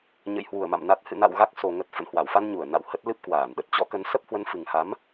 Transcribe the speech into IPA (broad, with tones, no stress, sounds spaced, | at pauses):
ɲ ə̰˧˨ j h w u˧˩ ə̯ m a̰˧˨ m n a˨˩ t̚ h ɨ̰˧˨ n a̰˧˨ w ɣ a˦˥ k̚ s o˨˩ ŋ ə˨˩ t̚ f ə̰˧˨ n h w a˧˩ w f a˧ n ɲ u˧˩ ə̯ n a̰˧˨ w h ə˦˥ t̚ l ɨ˦˥ p̚ k w aː˧˩ n ɗ ə˨˩ t̚ t͡ɕ ɔ̰˧˥ k ə˨˦ n s ə˦˥ p̚ h w ə˨˦ n f ɨ˨˩ ŋ h a˨˦ m